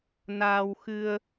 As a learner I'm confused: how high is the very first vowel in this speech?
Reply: low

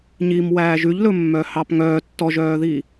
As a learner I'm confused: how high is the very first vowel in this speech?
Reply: high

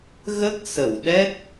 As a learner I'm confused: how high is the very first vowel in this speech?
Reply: mid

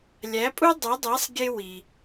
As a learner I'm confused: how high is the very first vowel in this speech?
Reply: low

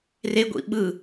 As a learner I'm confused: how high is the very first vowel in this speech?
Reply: mid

